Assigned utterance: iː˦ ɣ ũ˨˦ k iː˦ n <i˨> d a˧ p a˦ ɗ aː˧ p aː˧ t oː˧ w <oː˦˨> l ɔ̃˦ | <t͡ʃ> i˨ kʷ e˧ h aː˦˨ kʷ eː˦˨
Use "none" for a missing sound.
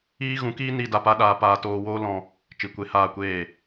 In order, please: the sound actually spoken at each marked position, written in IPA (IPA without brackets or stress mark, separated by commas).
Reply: i˦, oː˦, t͡ʃ